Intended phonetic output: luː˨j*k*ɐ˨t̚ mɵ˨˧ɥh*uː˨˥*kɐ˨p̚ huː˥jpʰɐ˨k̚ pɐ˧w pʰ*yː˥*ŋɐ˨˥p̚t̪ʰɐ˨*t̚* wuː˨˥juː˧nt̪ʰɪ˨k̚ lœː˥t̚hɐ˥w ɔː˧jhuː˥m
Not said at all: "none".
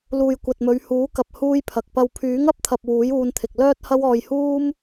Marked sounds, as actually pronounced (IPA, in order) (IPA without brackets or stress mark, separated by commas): kʷ, uː˨˥, yː˨˥, p̚